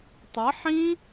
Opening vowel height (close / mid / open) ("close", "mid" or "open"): mid